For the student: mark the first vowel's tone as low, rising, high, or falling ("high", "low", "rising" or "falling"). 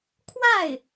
falling